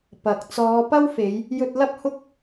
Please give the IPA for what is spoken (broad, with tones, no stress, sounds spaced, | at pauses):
p ɐ˨ k̚ t͡s ɔː˨˧ p ɐ˥ w f e˨˧ j | j ɵ˧ t̚ l ɐ˥ p̚ h ʊ˥ k̚